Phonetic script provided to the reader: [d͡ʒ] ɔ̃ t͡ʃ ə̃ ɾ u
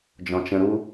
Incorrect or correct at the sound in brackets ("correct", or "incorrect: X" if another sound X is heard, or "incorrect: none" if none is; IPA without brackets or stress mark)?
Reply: correct